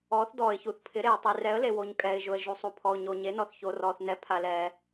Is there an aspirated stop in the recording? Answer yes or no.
yes